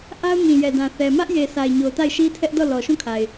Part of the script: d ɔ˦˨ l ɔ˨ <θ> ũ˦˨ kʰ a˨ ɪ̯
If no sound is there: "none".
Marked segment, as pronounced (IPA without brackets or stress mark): ʃ